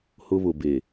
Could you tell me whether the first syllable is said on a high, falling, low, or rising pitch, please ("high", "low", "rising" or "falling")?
high